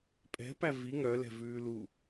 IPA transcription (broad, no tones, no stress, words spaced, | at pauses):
pʼɛ̤pæ vi ŋœlɛ̤vʉː lu